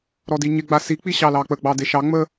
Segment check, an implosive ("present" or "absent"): absent